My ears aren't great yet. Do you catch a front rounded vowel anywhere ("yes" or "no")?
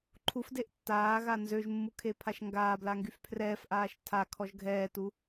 yes